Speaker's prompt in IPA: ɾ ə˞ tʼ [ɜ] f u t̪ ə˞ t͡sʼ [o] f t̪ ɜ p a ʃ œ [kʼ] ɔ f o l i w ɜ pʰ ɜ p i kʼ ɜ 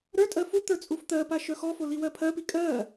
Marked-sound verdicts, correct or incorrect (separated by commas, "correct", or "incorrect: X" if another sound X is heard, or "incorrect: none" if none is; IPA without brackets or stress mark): correct, incorrect: u, incorrect: x